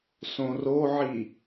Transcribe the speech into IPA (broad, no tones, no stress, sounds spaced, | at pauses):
s õ r o ʕ i